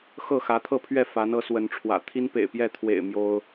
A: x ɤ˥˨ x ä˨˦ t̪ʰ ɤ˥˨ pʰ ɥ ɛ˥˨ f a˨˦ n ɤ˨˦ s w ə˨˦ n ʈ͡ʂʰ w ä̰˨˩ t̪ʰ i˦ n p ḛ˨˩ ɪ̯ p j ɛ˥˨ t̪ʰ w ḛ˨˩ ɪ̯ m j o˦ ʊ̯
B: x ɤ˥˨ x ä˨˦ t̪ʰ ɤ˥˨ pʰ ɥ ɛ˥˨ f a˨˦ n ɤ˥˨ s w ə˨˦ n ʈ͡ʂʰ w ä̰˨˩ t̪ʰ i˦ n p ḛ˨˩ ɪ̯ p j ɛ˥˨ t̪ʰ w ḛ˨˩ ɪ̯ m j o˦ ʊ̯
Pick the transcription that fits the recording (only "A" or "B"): A